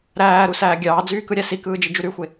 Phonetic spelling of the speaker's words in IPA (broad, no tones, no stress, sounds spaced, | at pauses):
ɾ æː ɾ u s æː ɡʲ ɑː d͡z yː k ɯ ɾʲ æ s i k ɯː d͡ʒ i d͡ʒ y ɾ y xʷ e